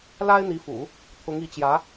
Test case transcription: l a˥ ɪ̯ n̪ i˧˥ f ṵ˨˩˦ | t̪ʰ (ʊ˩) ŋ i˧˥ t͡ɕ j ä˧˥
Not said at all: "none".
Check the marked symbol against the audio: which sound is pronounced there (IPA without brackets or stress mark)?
ʊ˧˥